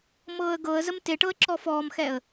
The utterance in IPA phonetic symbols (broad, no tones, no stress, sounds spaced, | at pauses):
m ɤː ə̯ ɡ ɤ ə̯ z ə m t e ʈ ɤ ə̯ ǁ ɔ f ɔː m x ɛ ə̯